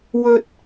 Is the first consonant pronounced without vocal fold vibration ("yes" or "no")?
no